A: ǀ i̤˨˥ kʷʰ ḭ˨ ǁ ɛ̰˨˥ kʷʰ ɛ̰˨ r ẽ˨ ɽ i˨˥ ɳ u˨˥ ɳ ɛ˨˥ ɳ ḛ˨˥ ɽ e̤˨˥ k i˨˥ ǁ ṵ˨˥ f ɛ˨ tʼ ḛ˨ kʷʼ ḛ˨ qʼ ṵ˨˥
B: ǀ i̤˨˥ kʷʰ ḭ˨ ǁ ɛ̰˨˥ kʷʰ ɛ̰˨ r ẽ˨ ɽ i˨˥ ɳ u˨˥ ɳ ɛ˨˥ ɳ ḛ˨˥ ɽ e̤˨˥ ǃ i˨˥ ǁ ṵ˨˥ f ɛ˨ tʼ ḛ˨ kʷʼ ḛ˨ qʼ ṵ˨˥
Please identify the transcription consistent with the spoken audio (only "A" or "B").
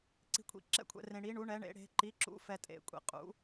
B